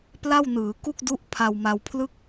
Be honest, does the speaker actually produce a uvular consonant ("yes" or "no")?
no